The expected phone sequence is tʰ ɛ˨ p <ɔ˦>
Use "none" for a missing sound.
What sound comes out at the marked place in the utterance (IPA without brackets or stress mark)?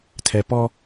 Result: ɔ˦